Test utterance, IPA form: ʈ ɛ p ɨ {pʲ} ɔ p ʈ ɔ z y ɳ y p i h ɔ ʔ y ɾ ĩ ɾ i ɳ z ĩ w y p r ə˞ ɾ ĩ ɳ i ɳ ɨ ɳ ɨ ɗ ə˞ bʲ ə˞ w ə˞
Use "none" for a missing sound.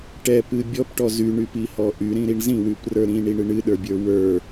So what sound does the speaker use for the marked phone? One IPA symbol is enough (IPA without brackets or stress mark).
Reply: bʲ